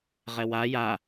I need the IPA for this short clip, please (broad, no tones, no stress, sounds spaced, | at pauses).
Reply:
ʁ ɛ w a j a